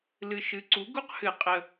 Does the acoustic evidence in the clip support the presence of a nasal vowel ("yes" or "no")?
no